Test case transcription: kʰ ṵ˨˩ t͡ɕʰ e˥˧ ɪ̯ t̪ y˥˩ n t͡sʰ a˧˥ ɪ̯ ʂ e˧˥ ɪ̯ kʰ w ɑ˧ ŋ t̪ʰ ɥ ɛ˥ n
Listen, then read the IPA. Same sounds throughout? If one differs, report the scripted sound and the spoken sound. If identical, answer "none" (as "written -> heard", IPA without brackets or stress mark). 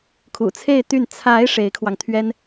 t͡ɕʰ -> t͡sʰ